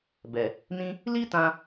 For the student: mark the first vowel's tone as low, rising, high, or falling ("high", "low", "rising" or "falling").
low